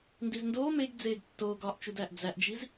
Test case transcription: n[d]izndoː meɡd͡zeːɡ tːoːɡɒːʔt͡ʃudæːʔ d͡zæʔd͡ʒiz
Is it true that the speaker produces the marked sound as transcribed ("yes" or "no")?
yes